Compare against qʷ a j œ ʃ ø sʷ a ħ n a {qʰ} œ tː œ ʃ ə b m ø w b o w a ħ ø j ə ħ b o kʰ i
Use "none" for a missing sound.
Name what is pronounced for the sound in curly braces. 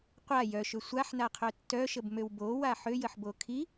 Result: qʰ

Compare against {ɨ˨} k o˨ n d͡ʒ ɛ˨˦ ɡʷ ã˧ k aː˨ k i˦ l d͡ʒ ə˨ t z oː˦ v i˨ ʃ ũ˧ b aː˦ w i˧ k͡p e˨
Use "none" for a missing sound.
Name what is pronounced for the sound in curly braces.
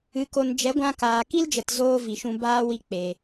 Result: ɨ˨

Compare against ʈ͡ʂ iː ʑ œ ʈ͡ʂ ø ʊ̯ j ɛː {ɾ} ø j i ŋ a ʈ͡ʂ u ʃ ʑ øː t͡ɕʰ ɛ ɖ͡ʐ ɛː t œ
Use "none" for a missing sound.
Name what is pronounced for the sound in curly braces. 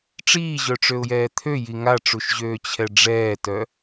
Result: t̪ʰ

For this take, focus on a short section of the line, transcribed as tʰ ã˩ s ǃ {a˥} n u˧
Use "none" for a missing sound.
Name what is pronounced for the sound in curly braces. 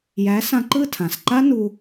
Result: a˥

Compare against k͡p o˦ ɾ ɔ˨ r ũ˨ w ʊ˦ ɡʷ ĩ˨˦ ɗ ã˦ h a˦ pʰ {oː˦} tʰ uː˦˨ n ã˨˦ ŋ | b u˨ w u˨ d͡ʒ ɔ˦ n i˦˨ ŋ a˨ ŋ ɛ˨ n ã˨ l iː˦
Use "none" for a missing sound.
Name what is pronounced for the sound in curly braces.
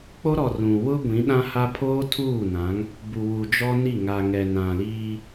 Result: oː˦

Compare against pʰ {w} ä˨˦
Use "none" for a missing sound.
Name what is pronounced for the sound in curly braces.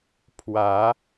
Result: w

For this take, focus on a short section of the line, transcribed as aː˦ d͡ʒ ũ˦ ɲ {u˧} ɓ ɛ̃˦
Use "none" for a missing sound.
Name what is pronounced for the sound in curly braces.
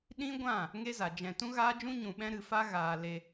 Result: ũ˧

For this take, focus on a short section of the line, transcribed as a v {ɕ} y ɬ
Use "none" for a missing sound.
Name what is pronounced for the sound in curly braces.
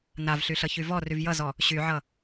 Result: ɬ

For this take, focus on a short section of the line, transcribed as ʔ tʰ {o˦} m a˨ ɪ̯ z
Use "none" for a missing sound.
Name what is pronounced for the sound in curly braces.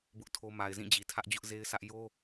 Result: o˦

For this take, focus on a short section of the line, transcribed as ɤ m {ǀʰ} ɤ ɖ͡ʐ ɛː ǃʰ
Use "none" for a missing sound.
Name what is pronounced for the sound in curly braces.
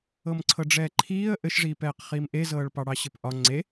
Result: ǀʰ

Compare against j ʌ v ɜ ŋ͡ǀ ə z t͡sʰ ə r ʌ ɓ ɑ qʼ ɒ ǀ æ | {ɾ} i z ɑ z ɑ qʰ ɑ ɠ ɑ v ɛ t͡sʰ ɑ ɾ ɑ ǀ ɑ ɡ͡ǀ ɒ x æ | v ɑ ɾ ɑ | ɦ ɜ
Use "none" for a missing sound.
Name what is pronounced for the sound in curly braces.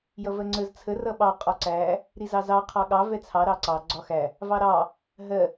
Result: ɾ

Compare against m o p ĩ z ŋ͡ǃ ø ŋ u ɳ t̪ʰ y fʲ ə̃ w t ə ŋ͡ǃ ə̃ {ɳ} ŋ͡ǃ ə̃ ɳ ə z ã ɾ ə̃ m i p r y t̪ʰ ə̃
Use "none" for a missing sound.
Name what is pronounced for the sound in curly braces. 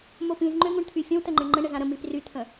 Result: ɳ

